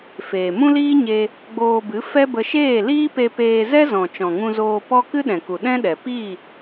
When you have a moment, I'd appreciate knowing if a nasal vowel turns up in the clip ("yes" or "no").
yes